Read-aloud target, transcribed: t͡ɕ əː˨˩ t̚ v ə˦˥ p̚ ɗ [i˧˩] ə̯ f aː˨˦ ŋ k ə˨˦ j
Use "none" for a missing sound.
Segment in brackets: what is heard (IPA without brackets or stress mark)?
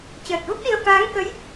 i˧